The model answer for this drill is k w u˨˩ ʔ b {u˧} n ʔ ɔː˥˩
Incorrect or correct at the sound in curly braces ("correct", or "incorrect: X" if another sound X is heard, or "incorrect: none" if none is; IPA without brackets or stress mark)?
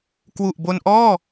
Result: incorrect: o˧